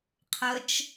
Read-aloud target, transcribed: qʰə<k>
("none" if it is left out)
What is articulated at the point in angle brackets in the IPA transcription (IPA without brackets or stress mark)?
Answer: t͡ʃ